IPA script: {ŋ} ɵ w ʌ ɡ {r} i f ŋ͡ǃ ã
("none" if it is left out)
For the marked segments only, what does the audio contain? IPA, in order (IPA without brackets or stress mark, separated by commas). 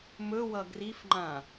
m, r